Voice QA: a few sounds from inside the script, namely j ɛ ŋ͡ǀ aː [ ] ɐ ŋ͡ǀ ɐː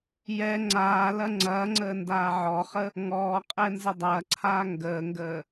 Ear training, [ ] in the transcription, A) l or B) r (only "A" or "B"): A